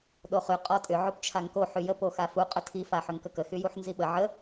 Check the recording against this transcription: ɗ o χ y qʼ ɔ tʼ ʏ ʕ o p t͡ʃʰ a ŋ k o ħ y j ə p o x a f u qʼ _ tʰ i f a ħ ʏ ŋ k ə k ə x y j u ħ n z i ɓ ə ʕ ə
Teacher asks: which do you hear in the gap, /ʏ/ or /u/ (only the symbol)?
ʏ